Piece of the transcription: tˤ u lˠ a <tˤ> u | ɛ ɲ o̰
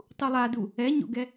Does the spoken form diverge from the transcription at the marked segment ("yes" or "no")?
yes